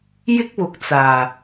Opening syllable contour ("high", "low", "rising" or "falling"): high